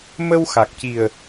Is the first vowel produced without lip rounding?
yes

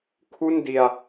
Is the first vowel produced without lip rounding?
no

